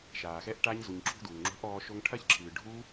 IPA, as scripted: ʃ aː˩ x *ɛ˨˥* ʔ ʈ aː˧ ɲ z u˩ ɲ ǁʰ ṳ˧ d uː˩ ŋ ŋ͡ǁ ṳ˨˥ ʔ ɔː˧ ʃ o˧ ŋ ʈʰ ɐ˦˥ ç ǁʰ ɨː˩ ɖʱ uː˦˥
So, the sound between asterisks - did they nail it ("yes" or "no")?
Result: yes